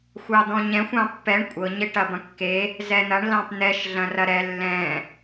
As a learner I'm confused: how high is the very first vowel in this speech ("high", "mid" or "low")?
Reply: low